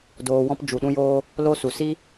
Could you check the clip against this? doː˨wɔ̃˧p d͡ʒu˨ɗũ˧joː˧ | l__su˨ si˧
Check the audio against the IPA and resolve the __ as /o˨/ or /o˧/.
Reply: o˧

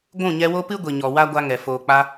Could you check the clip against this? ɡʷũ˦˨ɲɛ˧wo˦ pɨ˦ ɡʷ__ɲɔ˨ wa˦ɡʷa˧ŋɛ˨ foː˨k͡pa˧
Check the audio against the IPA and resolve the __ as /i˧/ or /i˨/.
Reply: i˨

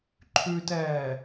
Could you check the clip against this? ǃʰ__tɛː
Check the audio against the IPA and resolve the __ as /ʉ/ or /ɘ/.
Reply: ʉ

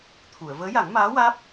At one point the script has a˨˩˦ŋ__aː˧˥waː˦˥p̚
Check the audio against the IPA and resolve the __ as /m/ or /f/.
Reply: m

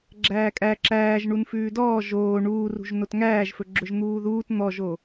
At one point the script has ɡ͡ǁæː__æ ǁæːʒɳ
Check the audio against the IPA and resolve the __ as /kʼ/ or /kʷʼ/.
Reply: kʼ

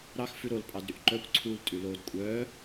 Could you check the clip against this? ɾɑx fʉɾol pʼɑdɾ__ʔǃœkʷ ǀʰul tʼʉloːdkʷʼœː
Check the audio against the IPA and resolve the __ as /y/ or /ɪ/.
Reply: y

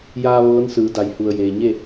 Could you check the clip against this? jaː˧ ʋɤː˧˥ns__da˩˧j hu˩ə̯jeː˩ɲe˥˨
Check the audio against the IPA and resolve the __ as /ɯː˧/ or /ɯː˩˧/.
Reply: ɯː˩˧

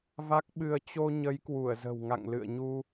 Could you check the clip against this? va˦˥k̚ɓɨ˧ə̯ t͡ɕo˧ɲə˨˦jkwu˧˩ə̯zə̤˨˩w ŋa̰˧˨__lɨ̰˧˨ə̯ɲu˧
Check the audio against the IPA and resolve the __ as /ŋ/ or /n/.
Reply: ŋ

